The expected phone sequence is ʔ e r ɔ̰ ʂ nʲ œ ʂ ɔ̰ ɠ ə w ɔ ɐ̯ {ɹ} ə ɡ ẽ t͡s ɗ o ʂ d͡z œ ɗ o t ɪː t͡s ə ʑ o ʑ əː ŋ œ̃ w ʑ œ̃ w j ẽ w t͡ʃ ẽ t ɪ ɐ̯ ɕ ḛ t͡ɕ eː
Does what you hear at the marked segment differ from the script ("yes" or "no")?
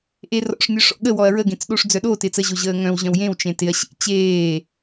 no